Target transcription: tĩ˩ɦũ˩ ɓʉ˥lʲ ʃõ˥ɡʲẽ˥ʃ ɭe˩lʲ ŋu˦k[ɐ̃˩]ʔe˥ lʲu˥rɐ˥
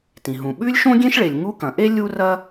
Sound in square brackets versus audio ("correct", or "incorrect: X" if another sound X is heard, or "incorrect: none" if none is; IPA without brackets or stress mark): correct